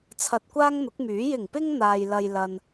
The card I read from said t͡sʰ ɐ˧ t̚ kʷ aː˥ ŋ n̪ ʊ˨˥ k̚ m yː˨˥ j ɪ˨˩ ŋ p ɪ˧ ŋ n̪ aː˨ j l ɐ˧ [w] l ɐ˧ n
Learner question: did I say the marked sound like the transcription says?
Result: no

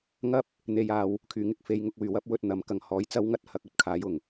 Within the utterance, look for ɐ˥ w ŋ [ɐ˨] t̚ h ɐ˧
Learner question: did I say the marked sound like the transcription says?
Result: no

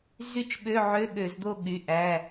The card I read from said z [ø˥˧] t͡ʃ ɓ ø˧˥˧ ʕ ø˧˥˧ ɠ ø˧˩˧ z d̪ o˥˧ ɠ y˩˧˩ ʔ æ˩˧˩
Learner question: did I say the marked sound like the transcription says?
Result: no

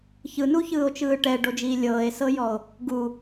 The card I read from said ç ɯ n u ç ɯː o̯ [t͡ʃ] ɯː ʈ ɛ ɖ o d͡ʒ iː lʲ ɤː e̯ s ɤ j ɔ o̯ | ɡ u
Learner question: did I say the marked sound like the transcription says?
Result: yes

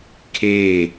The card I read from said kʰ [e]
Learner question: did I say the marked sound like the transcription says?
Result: no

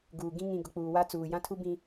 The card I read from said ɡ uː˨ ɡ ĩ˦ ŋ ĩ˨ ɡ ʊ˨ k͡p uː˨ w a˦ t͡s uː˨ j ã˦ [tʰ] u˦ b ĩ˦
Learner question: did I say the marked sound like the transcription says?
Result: yes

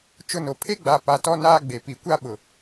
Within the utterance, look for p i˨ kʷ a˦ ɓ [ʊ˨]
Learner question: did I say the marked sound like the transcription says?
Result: yes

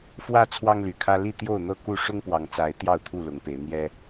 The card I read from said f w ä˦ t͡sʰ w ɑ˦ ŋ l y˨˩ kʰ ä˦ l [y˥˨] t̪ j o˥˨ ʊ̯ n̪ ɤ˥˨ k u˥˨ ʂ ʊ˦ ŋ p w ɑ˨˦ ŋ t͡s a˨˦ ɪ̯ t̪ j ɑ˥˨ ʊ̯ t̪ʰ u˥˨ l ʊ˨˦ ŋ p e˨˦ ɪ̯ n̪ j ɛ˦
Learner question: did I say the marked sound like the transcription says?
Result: no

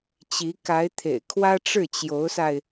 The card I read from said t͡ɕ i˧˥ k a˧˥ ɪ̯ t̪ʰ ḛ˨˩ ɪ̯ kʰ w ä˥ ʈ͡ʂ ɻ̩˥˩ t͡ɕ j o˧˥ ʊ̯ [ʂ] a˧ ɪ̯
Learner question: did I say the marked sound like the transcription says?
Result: no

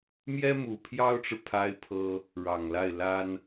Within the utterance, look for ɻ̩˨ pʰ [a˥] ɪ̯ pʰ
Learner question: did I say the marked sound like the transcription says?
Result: yes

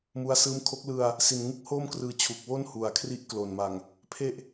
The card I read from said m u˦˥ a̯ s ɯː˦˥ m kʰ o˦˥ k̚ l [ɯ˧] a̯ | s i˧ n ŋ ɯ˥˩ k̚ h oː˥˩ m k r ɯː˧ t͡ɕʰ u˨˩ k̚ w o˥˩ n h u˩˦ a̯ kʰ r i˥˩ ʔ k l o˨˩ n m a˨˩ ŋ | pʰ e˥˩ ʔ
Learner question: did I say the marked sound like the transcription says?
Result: yes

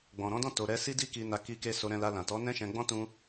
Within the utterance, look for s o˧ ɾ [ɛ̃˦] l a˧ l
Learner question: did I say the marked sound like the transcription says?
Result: no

